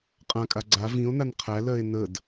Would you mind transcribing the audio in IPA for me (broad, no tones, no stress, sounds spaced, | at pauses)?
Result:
qʼ ã kʼ a ɡ͡ǀ a v ĩ o̯ n a n qʰ æ l ɜ e̯ n ə d